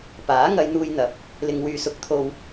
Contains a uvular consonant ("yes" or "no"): no